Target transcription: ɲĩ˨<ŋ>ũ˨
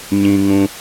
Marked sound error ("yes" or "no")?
no